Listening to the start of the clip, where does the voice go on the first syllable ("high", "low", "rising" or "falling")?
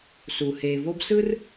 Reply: low